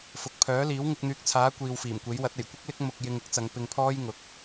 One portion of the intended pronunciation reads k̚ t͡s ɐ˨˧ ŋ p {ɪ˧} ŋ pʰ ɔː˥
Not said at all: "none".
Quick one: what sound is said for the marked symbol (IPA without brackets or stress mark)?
ɪ˧